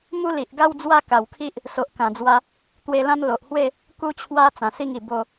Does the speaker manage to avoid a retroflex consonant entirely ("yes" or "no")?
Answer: yes